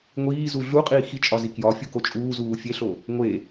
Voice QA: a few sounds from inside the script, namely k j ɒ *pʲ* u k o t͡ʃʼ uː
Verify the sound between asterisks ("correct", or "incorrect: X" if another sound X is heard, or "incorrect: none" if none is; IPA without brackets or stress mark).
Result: incorrect: fʲ